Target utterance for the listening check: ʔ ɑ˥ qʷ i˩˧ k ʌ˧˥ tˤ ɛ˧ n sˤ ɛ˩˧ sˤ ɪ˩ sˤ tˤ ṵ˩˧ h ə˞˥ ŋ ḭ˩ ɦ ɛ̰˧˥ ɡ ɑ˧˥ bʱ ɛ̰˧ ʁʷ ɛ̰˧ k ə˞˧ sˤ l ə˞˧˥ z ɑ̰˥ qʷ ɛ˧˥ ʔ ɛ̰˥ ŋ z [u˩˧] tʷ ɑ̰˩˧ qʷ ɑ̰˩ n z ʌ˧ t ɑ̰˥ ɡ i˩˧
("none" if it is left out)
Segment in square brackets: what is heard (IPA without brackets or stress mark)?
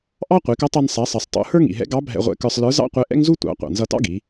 u˥